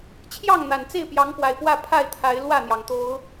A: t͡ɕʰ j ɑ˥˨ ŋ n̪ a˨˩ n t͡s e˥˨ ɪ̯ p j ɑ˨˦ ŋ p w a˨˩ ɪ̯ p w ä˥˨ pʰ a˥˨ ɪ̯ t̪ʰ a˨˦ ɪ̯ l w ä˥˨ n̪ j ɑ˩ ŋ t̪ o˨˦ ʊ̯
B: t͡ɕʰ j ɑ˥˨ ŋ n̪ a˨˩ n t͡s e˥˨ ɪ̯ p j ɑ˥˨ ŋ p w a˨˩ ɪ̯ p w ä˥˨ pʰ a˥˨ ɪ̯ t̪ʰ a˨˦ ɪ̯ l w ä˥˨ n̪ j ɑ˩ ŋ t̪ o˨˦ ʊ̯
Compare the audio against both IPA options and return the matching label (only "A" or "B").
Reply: A